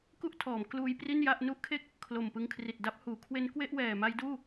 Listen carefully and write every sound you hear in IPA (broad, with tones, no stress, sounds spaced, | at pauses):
k u˥˩ ʔ tʰ ɔː˩˦ m k l uː˦˥ j p r i˥˩ n j a˥˩ ʔ n u˥˩ ʔ kʰ e˥˩ k̚ | kʰ l o˨˩ m p ɯ˧ ŋ kʰ r i˨˩ t̚ d a˦˥ p̚ h uː˩˦ kʰ w e˦˥ n k w e˥˩ ʔ w ɛː˨˩ m a˦˥ j d uː˥˩